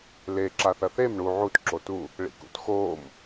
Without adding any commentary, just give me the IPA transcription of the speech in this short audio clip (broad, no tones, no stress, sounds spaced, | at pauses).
l e ǁ a θ ɐ θ e m ɳ u ʕ u t ǁ o t u | ɭ ḭ k ṵ t x oː m